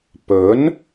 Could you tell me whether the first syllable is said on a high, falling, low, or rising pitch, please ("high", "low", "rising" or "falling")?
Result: rising